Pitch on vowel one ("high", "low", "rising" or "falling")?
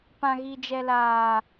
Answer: low